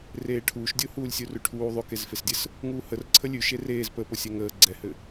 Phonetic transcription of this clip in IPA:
r eː ʈʰ uː ʃ dʲ o h uː lʲ sʲ u r ʉ ʈʰ uː ðˤ ʉ k e z f e s dʲ ɘ s | ŋ uː h ə r ǀʰ ə lʲ ʉ ʃ e r eː z p ə p ʊ sʲ ɛ ŋ əː ɡ͡ǀ ɛ h ɘ

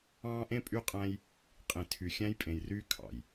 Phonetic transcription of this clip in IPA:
ɑ̃ː˦ ʔ ẽ˦ pʼ y˦ qʼ æ̃˦ j | qʼ ĩ˨ tʰ y˨ xʲ æ̃˦ j pʼ ẽ˨ j r yː˦ kʰ ɑ̰˨ j

